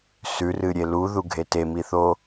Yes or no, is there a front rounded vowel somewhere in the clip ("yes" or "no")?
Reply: no